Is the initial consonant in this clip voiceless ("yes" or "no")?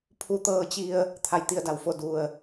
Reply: yes